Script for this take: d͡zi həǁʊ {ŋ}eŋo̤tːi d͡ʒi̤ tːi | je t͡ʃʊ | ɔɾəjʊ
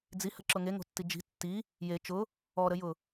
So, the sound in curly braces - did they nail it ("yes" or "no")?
yes